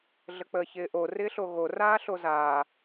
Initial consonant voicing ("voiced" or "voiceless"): voiced